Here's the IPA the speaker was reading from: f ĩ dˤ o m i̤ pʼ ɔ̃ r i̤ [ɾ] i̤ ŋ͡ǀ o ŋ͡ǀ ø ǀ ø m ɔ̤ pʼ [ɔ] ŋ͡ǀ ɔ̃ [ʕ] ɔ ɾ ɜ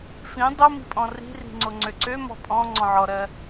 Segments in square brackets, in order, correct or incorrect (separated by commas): incorrect, incorrect, correct